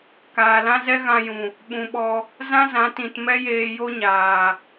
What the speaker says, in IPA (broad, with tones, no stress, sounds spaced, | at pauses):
k aː˨ l ã˦ z ɛ˦ ɣ ã˧ j ũ˨ | ɓ ũ˨ ɓ ɔ˧ | z ã˦ z ã˨˦ t ĩ˨ t m ɛ˦ j eː˧ j o˦ ɲ aː˨